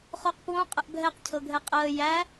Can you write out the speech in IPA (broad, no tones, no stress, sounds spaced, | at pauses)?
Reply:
χ o q p w õ qʼ ə ʔ bʱ ɛ q cʰ ɤ ɡʱ ɛ qʼ əː j æ